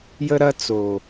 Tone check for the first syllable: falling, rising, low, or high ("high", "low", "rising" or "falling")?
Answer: high